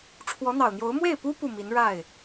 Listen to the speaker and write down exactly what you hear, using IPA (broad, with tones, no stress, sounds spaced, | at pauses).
ʈ͡ʂʰ w ɔ˧˥ n̪ ɑ˨˩ ʊ̯ n̪ j o˧˥ ʊ̯ m w e˥˩ ɪ̯ p u˥ p u˥˩ m i˧˥ n ɻ a˥˩ ɪ̯